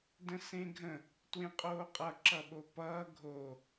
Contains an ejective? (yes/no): yes